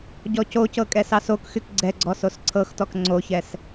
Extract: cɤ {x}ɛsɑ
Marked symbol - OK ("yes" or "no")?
no